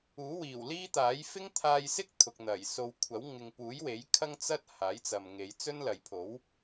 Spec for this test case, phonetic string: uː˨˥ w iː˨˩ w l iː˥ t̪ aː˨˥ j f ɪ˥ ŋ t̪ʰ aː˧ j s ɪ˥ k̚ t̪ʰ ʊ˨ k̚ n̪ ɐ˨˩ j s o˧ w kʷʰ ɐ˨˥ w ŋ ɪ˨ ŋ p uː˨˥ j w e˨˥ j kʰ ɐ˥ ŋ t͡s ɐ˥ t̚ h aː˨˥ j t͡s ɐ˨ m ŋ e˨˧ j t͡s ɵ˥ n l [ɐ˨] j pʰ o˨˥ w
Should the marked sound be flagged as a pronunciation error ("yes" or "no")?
no